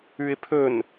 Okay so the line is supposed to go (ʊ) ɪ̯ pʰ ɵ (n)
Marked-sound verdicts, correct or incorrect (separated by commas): incorrect, correct